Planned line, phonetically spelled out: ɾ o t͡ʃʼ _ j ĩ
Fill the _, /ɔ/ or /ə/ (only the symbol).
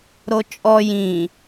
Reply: ɔ